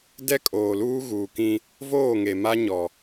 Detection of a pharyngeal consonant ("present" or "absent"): absent